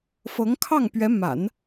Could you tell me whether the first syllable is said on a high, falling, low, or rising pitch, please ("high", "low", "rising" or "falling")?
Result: rising